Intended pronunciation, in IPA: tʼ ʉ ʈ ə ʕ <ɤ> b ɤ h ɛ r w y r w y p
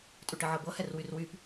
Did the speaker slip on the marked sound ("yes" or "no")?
no